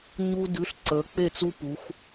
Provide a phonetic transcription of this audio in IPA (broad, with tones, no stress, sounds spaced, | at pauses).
ɲ u˧ d ʉ˩˥ ɬ ǀ ə˩˧ k͡p e˧˩ t͡s u˧ p u˩˧ x